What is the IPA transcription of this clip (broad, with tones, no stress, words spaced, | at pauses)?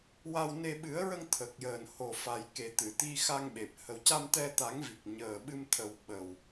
wa˧wne˧ ɓɨ˨˩˦ə̯ɹə˧ŋ t̪ʰə˨˩k̚jəː˨˩nho˨˩ fa˨˩jke˨˩t̪ɨ˨˩˨ t̪i˧xa˧ŋɓe˨˩p̚ hə˨˩wca˧mt̪ɛ˧ t̪a˨˩˦ŋvi˨˩k̚ ɲəː˨˩ɓɨ˧mt̪ʰə˨˩w ɓə˨˩w